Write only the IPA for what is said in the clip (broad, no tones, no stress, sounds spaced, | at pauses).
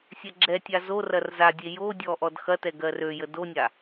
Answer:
sʲ ɛ ɡ͡ǁ ɛ tʲ a z o r ɐ r z a dʲ e j o dʲ ɔ ʔ ɔ d x ɐ t ɛ ɡ ɜ r ø j ə d o nʲ a